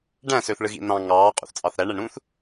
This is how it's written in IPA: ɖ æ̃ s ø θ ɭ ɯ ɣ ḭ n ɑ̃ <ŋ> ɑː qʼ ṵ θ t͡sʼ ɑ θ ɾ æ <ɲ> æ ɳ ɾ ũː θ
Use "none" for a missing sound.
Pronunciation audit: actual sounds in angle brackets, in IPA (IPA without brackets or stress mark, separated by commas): ŋ, ɳ